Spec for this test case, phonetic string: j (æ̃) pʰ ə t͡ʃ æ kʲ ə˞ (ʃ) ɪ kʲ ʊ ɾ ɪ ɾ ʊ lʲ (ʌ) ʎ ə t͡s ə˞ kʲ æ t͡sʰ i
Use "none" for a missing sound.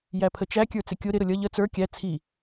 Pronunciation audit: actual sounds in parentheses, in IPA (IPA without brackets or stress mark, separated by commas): æ, t͡s, ʌ